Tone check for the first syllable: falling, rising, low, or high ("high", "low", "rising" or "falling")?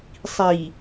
low